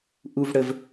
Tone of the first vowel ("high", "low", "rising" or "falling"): high